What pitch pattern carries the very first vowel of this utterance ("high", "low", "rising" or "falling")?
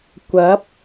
rising